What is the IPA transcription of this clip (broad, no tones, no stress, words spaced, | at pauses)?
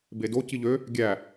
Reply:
bedo ciʎø | ɡʲæ